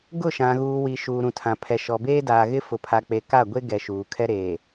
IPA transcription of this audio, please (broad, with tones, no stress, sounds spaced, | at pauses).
ɡ ʊ˦˨ ʃ ã˨ ɣ uː˨ w i˨ ʃ uː˨ ɾ ũ˨ tʰ ã˨ pʰ ɛ˨ ʃ ɔ˨ b eː˦ d aː˨ ɣ ɪ˦ f ʊ˨ pʰ a˨ k͡p e˨ k a˦˨ ɡʷ e˦ ɡ ɛ˨ ʃ uː˨ kʰ ɛ˦ ɾ eː˨